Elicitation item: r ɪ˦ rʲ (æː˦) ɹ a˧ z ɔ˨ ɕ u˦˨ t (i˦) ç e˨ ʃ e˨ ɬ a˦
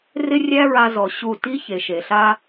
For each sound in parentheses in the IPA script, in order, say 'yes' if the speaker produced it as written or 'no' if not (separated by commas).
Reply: no, yes